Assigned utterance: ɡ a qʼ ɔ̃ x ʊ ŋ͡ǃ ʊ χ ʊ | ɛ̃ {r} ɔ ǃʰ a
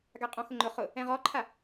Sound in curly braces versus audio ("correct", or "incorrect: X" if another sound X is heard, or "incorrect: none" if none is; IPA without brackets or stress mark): incorrect: ʁ